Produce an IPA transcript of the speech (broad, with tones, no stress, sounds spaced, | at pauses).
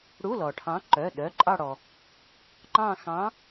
ɽ u˧˥˧ l ɔ˩ ʈʰ ɑ̃˨˥ ǃ œ˩˧˩ ɗ œ˩˧˩ ǃʼ ɑ˦˨ ɽ ɔ˩ | ŋ͡ǃ ɑ̃˦˨ x ɑ̃˨˥